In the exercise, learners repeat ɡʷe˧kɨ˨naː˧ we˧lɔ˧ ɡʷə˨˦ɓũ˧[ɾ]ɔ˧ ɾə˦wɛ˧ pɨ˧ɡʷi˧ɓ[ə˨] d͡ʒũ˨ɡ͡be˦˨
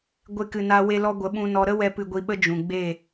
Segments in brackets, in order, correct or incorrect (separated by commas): incorrect, incorrect